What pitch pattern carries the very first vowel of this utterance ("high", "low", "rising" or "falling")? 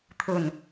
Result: low